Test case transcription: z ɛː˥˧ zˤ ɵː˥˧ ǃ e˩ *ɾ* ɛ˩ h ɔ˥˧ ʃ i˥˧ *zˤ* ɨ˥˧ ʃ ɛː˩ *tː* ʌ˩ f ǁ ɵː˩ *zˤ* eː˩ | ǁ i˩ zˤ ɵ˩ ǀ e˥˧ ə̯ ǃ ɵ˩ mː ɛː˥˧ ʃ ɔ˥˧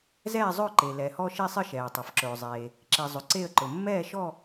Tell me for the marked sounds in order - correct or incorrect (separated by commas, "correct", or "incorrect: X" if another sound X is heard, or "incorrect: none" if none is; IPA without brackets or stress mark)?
incorrect: l, incorrect: sˤ, incorrect: tˤ, correct